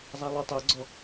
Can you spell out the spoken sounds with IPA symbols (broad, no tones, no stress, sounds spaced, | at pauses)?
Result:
zˤ a lˠ o tˤ o ɡ͡ǀ ɔ